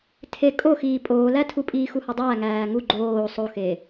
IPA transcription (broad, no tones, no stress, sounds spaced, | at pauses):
tʰ e kʼ o x iː pʼ oː l æ tʰ u pʼ iː x u h ɒ dˤ æː ŋ æː ŋ u ɡ͡ǃ oː sˤ o x eː